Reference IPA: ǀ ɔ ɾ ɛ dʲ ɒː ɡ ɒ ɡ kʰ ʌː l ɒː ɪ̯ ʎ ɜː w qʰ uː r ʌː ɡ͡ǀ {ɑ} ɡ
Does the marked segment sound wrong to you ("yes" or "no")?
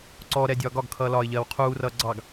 no